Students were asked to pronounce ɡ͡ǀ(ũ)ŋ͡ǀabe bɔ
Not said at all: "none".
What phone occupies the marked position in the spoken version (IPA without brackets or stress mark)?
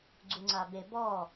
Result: u